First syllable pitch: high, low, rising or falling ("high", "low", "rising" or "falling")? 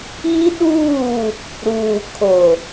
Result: high